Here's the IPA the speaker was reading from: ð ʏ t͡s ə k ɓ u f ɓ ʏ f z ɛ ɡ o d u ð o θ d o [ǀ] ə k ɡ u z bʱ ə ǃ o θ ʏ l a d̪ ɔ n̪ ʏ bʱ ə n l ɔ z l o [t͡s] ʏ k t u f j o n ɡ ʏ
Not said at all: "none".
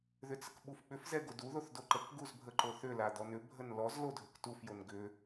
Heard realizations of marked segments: ǃ, dʱ

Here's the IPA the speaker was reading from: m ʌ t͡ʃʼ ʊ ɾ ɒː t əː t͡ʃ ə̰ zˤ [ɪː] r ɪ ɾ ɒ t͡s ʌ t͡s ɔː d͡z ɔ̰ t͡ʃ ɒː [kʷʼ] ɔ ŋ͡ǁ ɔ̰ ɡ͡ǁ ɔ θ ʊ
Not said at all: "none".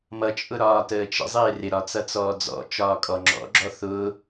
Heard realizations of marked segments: ɪː, kʼ

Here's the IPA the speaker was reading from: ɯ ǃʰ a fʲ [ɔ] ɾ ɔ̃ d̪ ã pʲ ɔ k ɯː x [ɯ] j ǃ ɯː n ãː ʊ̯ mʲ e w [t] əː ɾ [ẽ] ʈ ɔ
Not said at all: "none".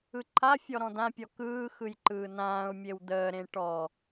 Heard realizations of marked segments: ɔ, ɯ, d̪, ẽ

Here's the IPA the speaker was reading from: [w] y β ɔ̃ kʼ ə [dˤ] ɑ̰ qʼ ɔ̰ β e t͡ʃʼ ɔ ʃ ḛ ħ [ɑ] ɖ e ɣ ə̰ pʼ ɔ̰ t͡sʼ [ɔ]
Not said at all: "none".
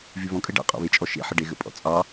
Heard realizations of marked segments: v, ɖ, ə, ɑ

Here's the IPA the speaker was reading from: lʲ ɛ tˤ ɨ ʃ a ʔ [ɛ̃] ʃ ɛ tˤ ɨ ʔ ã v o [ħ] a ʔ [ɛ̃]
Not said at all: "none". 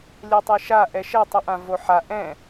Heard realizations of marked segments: ɛ, ħ, ɛ̃

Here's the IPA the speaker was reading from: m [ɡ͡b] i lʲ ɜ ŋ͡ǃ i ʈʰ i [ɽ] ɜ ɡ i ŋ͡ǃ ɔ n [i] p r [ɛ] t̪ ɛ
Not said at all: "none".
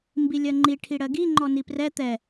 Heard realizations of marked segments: b, ɽ, i, ɛ

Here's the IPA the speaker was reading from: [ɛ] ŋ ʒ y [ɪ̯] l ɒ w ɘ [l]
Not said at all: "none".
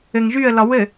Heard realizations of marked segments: ɘ, ə̯, none

